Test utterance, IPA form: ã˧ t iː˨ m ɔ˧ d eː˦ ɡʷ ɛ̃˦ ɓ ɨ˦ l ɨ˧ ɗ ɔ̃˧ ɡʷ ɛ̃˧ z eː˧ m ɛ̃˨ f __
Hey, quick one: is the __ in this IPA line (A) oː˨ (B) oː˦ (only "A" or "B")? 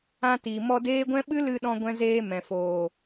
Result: A